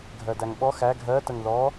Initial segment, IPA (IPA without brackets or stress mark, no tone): ɡʱ